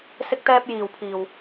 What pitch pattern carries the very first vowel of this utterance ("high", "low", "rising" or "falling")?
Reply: high